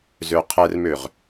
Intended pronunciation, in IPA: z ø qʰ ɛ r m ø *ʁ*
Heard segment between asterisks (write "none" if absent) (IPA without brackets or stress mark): ʁ